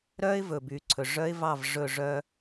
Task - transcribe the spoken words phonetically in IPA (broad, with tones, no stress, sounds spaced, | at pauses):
ɾ œː˦ ɪ̯ v ɵː˨ b yː˨ ǀʰ ɵ˨ ʐ œ˦ ɪ̯ v ɑ˦˨ v ʐ ɵ˦˨ ʐ œ˦